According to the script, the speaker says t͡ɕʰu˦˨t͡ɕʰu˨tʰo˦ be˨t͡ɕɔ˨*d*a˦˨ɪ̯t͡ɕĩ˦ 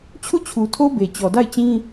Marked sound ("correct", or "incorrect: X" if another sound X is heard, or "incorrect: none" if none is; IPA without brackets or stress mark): correct